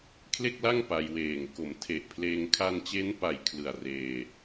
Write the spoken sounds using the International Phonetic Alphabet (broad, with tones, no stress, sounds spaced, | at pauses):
kʰ l e˥˩ k̚ l a˥˩ ŋ p a˧ j w eː˨˩ ŋ k o˩˦ m tʰ e˨˩ ʔ pʰ l eː˧ ŋ kʰ a˧ n t͡ɕ e˦˥ n p a˨˩ j kʰ l ɯ˨˩ a̯ r eː˧